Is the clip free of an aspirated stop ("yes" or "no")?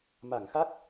yes